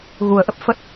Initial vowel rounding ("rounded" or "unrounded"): rounded